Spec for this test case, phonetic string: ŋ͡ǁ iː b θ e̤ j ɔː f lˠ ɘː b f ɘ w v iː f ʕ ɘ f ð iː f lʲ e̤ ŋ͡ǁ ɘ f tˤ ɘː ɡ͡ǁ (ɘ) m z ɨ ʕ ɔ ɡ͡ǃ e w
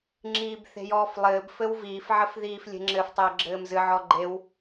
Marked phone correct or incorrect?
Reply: incorrect